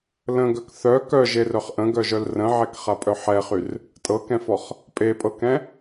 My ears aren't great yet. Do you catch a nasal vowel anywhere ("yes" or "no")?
yes